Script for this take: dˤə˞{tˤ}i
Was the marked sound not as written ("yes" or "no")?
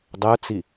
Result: yes